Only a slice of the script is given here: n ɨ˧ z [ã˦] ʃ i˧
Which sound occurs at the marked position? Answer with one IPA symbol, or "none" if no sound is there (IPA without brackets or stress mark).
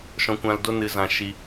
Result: ã˧